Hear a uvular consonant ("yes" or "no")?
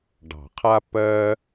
yes